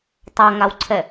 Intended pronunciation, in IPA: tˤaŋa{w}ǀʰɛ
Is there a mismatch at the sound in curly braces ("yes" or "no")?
no